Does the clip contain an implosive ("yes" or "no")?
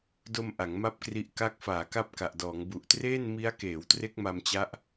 no